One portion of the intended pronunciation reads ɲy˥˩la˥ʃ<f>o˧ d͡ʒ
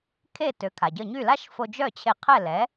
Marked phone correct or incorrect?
correct